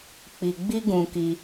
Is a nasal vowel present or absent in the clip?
present